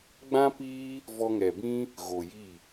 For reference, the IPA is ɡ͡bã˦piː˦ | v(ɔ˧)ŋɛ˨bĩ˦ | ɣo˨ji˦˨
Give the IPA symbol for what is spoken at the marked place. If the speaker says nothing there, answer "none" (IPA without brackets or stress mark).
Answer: ɔ˧